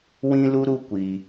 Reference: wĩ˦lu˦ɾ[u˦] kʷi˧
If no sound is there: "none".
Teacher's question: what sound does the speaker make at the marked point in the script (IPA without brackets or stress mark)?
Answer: u˦